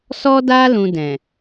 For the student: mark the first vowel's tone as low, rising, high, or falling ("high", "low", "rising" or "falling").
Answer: high